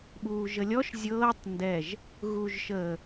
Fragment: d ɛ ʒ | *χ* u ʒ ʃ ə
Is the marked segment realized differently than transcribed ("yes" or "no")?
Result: yes